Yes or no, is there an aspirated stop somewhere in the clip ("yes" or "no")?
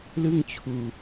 yes